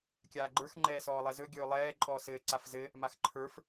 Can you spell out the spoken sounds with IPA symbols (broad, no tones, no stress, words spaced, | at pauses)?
kʲaːɡ͡ǃə˞x ŋ͡ǃɛːsɔːlˠɛzɵ ɡʲɵːlˠɛː ǃʼɔːsɘː ǀafzɘ | maxǃʰə˞f